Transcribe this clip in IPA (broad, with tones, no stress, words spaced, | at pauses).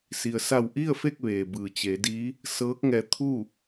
si˩ə̯sa˧˩w ʔi˥˨ə̯fe˥˨k̚ ʋeː˩bɯː˩ t͡ɕe˩˧diː˧˥ | sɤː˧˥k̚ŋɛː˧t̪ʰuː˥˨